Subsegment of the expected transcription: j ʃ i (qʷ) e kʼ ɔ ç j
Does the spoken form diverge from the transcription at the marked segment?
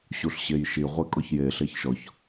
yes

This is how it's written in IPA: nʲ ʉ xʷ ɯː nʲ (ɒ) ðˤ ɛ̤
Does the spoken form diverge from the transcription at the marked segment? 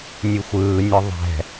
no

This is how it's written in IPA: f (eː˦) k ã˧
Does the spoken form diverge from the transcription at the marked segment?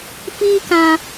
yes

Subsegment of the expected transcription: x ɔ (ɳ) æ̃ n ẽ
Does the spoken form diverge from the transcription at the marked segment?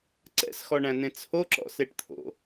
no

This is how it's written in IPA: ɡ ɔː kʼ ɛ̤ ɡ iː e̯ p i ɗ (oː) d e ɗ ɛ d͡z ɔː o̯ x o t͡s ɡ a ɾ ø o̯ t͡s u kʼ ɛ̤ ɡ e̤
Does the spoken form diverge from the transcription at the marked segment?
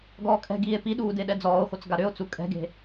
yes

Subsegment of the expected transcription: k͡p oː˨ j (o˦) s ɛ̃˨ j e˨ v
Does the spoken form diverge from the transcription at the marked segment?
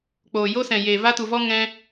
no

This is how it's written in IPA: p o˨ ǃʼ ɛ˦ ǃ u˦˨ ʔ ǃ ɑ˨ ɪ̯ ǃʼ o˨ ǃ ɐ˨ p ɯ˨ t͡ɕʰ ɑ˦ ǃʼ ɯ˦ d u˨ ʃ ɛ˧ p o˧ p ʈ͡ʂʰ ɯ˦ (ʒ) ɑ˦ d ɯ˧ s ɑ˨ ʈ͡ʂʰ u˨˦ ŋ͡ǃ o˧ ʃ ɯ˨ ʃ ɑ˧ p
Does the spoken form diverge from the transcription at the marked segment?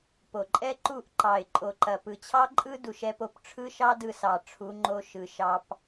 yes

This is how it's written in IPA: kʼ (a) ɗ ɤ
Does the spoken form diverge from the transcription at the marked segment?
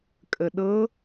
yes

